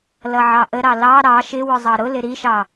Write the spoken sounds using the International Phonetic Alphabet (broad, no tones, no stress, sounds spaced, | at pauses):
l ʌ ʕ ɑ ʔ ə ɾ ɑ l ɑ ɾ ɑ ʃ ɪ w ʊ zˤ ɑ ɾ ʊ l ɪ ɾ i ʃ ɑ